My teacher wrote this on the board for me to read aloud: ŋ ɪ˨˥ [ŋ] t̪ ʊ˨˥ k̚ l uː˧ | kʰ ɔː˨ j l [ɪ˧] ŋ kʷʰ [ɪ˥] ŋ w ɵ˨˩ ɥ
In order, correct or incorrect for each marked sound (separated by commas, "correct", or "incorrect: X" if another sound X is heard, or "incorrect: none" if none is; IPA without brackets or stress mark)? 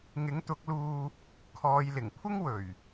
correct, incorrect: ɪ˨˩, correct